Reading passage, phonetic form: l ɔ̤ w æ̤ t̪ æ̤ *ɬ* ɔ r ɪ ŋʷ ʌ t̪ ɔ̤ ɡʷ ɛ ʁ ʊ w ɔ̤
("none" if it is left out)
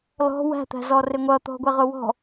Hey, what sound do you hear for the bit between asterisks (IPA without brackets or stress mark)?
z